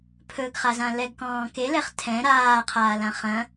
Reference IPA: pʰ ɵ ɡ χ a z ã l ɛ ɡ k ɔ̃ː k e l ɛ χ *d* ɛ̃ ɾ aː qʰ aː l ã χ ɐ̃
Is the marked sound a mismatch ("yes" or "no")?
yes